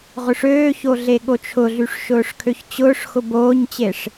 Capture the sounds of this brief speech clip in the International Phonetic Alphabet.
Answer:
ʁʊʂøːço ɮeɠot͡ʃʰʊɮyʂ ʃʊːʂkʰøçt͡ɕʊːʂxʊ boːɲt͡ɕeʂ

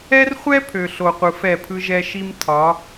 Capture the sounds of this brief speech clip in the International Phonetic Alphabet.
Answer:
ɛ˦rχʷɛ˦ pʰø˨ɬo˨ qʷɯ˨fɛ˦˨pʰɯ˦ʒɛ˦ ʃi˦mtʰɒ˨˦

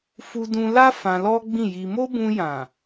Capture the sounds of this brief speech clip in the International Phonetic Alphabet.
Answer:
fu˧dũ˧la˦ fã˧lɔ˦ɡ͡bĩ˦˨ji˧ mo˦bũ˧jã˨

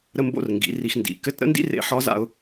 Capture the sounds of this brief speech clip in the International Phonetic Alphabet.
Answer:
ɾə˧mbo̰˧r ŋɡḭ˩˧ ri˧x ndḭ˩˧ kɘ˧˥tɾə̰˥ndḭ˥ rḛ˧ ħɒ˧˥za̰˧ʊ̯

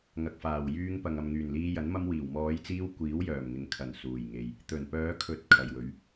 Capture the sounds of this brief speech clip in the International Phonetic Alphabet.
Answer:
ŋɐ˨k̚faː˨˩wjyː˧ŋpɐ˨ŋ ɐ˨mŋyː˨˩nliː˧jɐ˨˥n mɐ˧mwiː˨˩wmɔː˨˧jt͡siː˧w kʷiː˨˥wjœː˨˩mŋɪ˨ŋ kʰɐ˨˩n suː˨˩jŋe˨j | t̪ɵ˨˩npœː˨˧kʰɵ˨˥t̚ kʰɐ˨jwɵ˨˥ɥ

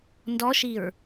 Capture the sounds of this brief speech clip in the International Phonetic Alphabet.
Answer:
ndɔʃiɹ

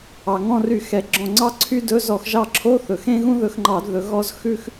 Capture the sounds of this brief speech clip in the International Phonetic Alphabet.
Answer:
ɑ˩ŋɔ̃˦˨ry˧˩˧ xɛ˩˥ɡ͡ǁɔ̃˦˨ ŋ͡ǀɑ˥ǀʰy˥dɵ˧˥˧ zɔ˧˩˧xʒɑ˦˨ǁʰo˧˥˧θɵ˩ xẽ˥ɣũ˥ðɵ˧˩˧xŋ͡ǃɑ˧˩˧d ðɵ˩˥ɣɔ˥z xʉ˥x

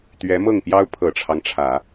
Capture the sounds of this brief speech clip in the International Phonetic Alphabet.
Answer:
t̪ɥɛ˧˥mɤ˥˩ŋpjɑ˥ʊ̯ pʰɤ˨˩ʈ͡ʂʰɑ˦ŋʈ͡ʂʰä˨˩˦

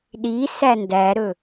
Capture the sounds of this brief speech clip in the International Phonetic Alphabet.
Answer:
ɗi sændæɾɵ

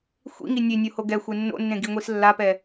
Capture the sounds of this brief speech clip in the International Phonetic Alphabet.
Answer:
xʷḭŋi nʲenʲoho ɡɛxʷe nːo̰nːẽɡiŋʷis lːapɛ

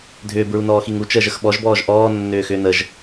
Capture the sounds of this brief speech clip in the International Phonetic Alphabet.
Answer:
dʱʏːbɹunɔːxiŋ ut͡ʃəːʒəx ɓɔʒbɔːʒ ʔɔːnːʏːxʏː nəʒ

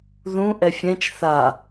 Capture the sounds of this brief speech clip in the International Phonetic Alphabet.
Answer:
ðũ ʔɛfʲɛ̃t͡ʃ θa

